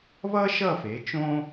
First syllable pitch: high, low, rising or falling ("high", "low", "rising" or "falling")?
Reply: high